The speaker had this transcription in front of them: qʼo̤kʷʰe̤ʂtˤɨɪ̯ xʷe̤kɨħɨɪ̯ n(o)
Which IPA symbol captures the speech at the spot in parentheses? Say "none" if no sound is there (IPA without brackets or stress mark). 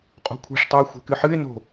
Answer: o̤